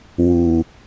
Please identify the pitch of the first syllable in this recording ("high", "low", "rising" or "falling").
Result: low